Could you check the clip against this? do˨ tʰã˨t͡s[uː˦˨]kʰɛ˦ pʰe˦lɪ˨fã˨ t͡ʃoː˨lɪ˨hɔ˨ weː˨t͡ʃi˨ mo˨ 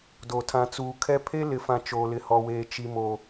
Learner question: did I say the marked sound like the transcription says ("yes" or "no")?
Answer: no